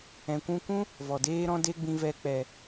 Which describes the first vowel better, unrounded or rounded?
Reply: unrounded